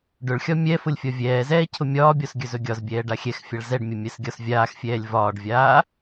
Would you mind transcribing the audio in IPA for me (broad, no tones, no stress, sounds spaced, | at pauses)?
ɖ ʊ ɭ xʲ ɒ mʲ ɛ f ʊ lʲ fʲ ɒ vʲ ɛː z ɛː cʰ ʊ mʲ ɒː bʲ ɔ s ɡʲ ɵ z ɵ ɡʲ ɒ z bʲ ɛː ɖ a xʲ ɛ x fʲ a ɭ z ɛ ɖ mʲ ʊ mʲ ɛ s ɡʲ ɒ s vʲ aː x fʲ ɛː lʲ v ɒː ɖ vʲ aː